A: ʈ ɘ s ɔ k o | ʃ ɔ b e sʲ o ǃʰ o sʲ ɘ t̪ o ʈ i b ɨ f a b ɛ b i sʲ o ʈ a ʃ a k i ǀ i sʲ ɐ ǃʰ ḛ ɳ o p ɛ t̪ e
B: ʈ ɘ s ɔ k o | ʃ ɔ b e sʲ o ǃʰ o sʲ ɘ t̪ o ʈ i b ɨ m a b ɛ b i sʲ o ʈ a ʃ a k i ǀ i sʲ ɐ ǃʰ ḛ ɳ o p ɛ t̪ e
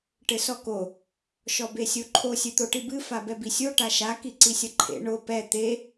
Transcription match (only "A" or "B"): A